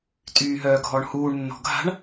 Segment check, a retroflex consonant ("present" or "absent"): present